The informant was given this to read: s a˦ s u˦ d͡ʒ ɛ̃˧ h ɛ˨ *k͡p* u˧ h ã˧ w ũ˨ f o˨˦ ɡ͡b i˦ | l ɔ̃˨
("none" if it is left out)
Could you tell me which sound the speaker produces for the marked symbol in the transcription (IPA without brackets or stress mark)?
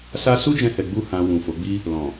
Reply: ɡ͡b